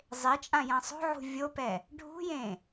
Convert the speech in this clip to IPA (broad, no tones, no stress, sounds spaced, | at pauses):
zˤ e t͡ʃʼ ã j ã sˤ o̤ ʕ ṳ vʲ o p ɛ | ɖʱ ṳ j ẽ